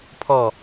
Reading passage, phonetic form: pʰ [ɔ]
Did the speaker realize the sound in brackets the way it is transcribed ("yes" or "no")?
yes